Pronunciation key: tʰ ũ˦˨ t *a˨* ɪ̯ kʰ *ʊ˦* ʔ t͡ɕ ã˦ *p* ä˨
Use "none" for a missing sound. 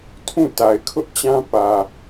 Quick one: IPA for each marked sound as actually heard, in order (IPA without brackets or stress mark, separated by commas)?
a˨, ʊ˦, p